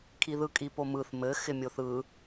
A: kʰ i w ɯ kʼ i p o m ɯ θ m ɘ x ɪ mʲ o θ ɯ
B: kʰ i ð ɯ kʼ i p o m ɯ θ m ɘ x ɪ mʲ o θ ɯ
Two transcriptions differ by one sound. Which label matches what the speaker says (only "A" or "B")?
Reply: B